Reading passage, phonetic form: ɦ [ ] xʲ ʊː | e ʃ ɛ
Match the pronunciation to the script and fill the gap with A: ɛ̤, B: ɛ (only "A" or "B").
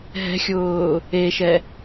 A